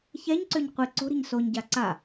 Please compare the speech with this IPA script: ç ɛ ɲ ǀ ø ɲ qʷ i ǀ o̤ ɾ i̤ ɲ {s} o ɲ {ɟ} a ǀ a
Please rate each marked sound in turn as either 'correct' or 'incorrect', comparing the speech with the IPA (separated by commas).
correct, correct